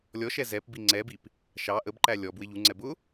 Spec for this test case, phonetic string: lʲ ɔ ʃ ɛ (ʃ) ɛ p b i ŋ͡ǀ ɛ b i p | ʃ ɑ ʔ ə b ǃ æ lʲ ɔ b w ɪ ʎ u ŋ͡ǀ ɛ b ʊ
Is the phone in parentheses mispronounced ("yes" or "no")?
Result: yes